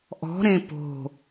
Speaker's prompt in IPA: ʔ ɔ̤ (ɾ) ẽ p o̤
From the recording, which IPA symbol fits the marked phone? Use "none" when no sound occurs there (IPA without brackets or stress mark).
ɾ